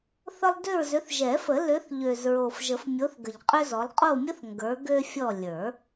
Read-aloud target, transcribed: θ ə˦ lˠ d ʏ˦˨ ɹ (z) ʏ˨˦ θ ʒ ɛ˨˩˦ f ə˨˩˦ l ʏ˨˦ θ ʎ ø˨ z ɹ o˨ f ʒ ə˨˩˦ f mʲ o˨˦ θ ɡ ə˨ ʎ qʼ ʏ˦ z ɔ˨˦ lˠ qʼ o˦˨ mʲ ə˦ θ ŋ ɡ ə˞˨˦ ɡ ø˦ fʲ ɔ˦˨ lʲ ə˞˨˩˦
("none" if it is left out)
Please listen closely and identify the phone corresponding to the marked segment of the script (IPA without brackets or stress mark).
z